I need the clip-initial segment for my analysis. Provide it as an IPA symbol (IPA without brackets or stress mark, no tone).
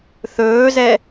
θ